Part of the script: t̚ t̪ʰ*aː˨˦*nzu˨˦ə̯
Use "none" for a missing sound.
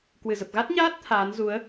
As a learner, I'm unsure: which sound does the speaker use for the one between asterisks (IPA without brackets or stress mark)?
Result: aː˨˦